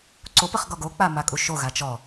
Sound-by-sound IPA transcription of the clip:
ǀop əχɡɔɡok͡pa makʼuʃoɣa t͡ʃɔ

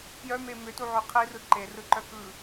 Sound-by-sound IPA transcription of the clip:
pjœme mʏtuʕø qʰirɯ ǃerɯǃœ kɯ

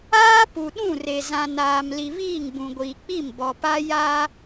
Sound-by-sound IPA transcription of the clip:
aː˦pu˨ɗũ˦˨re˨ zã˨naː˨mli˨ βiː˦˨ŋ bũ˨ɡʷiː˨k͡pi˦˨m bɔ˨pa˦ ja˦

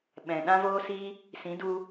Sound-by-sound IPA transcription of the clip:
ɓɛ̃˨ɗã˦voː˦si˦ | sĩ˨˦du˧

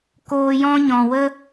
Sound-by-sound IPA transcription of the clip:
koː˧jɔ̃˦ɲɔ̃˨ wə˦

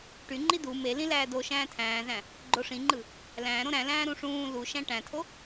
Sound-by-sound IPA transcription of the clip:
ʈyŋ͡ǃi du melĩ læːdo ʃæ̃ːtʰæ̃ːzæ̃ | ɡ͡ǃoʂĩŋ͡ǃɯ | læ̃ːɾõ ɾæ̃ læ̃ːɾũʂũː luʃæ̃ ʈæ̃tʰo

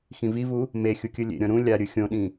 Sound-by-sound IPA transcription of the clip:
xĩvivu | mexʲukʲɯ lʲḛɾʲɔ̃ ɾũ lʲaɾʲɯ xʲõɗĩ

